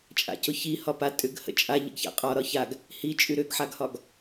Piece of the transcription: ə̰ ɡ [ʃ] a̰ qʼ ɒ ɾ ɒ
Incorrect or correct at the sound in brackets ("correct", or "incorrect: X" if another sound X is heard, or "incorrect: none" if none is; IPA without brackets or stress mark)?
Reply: incorrect: ç